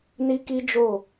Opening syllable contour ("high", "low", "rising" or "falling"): high